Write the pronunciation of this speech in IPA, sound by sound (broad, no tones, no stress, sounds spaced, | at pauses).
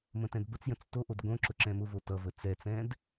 m ə̃ t ɛ̃ d b ə t͡s j ə̃ t͡s t o ʔ o d ɡ õ ǁ ʊ ǁ ɛ̃ m ʊ v o t ʌ v ə t͡s ɛ t͡s ɛ̃ d